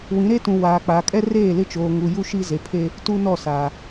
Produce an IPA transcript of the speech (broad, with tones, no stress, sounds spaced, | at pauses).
w ĩ˨˦ ɾ e˦ t ũ˨ w aː˨ k͡p a˨ kʼ ɛ˦ r eː˦˨ l ɪ˦ t͡ʃ oː˨ ŋ u˨ j u˦ ʃ i˦ z e˨ pʰ e˦ | t u˦ n ɔ˦˨ s a˨